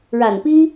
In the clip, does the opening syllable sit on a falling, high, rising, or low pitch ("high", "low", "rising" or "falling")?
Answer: low